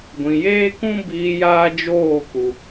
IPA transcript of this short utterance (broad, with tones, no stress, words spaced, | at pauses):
ɡʷĩ˨jeː˦kũ˦ biː˧ jaː˦d͡ʒoː˦˨ ku˨